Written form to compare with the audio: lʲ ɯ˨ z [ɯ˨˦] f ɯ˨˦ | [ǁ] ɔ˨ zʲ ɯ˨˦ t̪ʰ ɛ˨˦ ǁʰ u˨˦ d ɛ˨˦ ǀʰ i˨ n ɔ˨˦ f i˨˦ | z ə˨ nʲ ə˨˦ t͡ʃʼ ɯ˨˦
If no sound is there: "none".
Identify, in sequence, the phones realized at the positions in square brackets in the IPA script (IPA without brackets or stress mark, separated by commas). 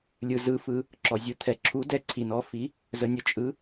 ɯ˨˦, ǁ